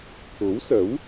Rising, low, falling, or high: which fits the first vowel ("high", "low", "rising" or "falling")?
rising